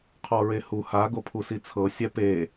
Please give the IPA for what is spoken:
qʰ ɔ ɹ e h u h a ɡ o pʰ u s i t͡sʰ ɤ sʲ ɛ p e

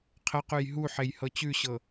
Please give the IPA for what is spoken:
qʰ ə q ʉ j ɦ u ħ e j h ɤ t͡ɕ ʉ ɕ ɤ

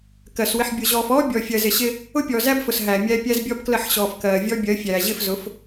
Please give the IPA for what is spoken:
k ɜ˨ s w ɪ˨ ħ bʲ ʊ˨ ʑ ɔː˨ f ɔː˦ bʲ ɔ˨ fʲ ɜ˨ z ɪ˨ ɕ ɪ˦ | ʊ˦ pʲ ɔː˨ z æ˦ b f ʊ˨ s ɦ æ˨ mʲ æ˦ pʲ æ˦ z bʲ ɔ˦ b k l ə˦˨ ħ ɕ ɔː˨ f k ɜː˨ vʲ ɔ˦ bʲ ɜ˨˦ fʲ æː˨ ʑ ɪ˦˨ f z ʊ˨˦ f

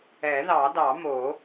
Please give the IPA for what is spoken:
ɛ˨˩˦ ð ɑ˨˩˦ d ɑ˨˩˦ m o˨˩˦

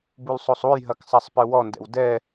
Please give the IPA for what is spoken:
b u l sˤ o sˤ u j ɦ ɐ k sˤ a sˤ p ɨ w ɔ n d ɛ̰ w d ɛ

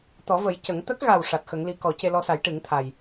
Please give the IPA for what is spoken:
t̪ ɔ˨˩˦ v ə˨˩˦ j c ə˨˩˦ ŋ t̪ ə˦˥ k̚ ɣ a˨˩ w ʂ a˨˩ t̚ x ə˨˩˦ ŋ l i˧˥ k ɔ˨˩˦ c e˧ l ɔ˧ s a˨˩˦ j ʈ ɨ˨˩˦ ŋ t̪ʰ a˨˩ j

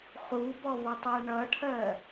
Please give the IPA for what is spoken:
χ u b ɔ β ʌ tˤ æ ɳ ʌ ʈʰ ɜ

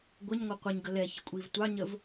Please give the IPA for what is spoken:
ɡʷ ə ɲ ŋʷ ə qʷ ɛ ɲ ɡ ə l ɛ ç ə kʷʼ i v tʷ ɑ ɲ ə v

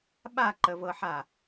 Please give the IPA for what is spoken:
ɓ a ǃ ə v ɤ ħ a

